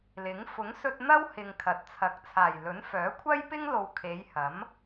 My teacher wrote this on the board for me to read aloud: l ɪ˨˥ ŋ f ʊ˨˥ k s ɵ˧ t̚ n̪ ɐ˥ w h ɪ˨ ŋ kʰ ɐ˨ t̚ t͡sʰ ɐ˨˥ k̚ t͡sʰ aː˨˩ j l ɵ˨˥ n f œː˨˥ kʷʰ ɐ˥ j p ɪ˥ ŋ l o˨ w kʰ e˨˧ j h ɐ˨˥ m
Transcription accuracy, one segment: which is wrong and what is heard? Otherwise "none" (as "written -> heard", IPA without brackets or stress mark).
k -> ŋ